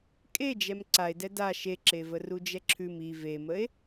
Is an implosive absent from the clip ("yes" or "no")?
yes